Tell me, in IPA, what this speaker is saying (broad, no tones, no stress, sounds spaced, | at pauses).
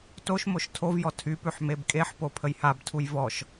t o ʃ m o ʃ tʰ o v j ɔ tʰ y p ʉ ħ m e b kʼ e ħ p o pʰ ə j h a b tʰ u j v ɔ ʃ